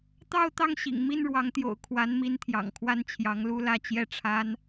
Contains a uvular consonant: no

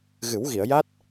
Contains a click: no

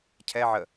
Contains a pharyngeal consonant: yes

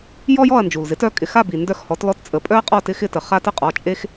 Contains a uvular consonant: yes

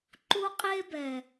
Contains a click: yes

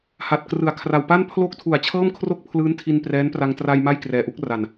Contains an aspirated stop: yes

